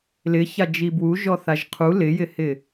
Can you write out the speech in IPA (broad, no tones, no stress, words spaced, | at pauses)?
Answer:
lɪça d͡ʒibwu ʒɔθaʒqʰu lɪjɪhɪ